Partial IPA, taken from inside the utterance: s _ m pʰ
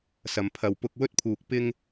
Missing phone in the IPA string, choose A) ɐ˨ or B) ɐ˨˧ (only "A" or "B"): B